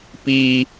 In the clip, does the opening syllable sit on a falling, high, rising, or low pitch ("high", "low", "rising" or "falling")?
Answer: high